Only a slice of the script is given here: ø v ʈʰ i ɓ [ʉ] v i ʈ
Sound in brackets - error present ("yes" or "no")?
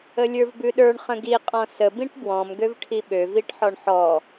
yes